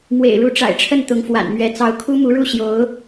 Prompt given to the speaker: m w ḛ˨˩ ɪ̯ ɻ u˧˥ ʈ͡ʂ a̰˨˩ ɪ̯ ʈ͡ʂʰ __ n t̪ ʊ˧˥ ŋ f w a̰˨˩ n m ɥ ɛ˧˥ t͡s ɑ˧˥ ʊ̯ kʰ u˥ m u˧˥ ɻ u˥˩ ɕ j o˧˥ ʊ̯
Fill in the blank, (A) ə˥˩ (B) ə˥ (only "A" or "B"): A